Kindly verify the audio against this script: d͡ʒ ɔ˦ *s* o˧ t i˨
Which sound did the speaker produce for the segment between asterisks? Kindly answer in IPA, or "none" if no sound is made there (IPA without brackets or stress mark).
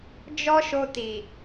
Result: ʃ